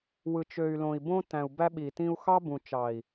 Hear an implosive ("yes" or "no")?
yes